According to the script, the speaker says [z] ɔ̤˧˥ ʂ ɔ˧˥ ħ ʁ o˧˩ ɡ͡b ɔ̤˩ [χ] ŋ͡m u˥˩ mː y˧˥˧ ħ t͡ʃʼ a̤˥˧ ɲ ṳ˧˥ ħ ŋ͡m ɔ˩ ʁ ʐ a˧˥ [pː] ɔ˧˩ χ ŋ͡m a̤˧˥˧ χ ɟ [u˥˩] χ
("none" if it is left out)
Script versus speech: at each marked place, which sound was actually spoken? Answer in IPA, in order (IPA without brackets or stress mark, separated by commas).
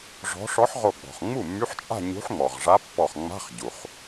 ʐ, χ, pː, u˩